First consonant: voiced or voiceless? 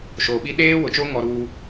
voiceless